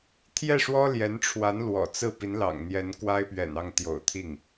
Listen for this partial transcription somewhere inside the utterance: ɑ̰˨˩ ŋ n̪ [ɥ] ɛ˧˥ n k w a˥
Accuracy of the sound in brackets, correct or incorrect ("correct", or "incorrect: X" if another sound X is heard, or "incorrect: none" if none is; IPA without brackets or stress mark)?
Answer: incorrect: j